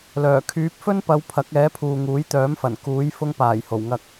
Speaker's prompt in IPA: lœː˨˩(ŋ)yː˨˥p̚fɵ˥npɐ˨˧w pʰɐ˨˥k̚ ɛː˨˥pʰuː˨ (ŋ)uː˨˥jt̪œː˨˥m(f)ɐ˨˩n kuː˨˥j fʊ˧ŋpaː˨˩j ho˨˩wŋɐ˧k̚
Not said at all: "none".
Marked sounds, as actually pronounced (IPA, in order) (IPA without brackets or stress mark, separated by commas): kʰ, ŋ, f